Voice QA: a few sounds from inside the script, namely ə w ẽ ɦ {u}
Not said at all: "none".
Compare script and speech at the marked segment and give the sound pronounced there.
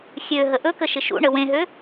ø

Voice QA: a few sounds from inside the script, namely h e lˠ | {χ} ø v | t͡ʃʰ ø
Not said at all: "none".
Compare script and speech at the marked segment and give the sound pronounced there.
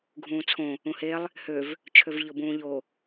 h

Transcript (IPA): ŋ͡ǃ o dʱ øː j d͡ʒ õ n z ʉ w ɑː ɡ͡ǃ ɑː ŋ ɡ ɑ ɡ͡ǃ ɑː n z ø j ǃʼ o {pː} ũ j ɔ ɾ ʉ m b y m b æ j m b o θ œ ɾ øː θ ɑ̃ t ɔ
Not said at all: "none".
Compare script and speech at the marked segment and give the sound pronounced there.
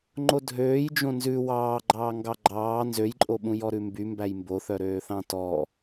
ɓ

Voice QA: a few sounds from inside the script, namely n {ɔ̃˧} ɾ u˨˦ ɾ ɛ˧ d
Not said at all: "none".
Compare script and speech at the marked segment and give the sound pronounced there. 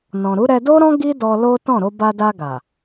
ɔ̃˨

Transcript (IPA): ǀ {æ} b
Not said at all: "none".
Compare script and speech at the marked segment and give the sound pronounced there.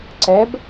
ɛ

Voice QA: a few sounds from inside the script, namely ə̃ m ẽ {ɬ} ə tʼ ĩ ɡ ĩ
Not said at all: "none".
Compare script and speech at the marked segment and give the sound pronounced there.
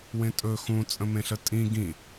ɬ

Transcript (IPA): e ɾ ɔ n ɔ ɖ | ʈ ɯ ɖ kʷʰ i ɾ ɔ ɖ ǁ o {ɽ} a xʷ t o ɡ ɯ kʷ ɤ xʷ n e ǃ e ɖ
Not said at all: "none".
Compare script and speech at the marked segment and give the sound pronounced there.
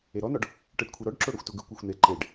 ɽ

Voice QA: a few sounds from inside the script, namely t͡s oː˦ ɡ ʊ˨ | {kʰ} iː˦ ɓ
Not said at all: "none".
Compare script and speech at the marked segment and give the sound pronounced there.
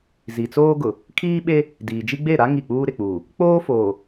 kʰ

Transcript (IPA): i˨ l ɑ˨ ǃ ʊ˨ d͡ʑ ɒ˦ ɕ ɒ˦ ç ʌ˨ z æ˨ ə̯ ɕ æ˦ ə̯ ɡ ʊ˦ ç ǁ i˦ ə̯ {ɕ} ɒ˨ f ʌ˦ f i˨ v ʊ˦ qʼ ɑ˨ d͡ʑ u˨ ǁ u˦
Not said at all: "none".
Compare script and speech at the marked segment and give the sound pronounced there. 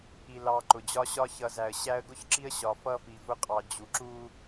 ɕ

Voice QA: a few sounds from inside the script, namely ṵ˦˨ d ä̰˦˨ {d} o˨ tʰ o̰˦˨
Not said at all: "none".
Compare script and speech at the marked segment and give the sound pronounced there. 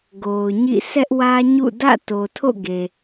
t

